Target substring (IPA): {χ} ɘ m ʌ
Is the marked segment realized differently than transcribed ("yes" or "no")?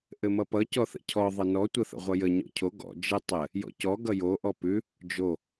yes